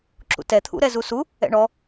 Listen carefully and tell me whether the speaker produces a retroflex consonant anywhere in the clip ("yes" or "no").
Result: yes